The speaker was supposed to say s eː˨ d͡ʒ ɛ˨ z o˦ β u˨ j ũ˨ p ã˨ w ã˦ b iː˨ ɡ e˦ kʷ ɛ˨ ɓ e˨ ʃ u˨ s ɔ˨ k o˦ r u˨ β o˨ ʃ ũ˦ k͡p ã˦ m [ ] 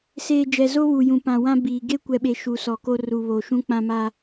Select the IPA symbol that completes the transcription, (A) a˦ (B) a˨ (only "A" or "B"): A